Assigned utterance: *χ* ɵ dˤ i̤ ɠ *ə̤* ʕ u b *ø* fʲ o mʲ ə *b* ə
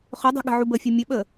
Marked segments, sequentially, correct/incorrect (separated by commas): correct, correct, incorrect, incorrect